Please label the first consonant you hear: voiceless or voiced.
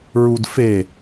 voiced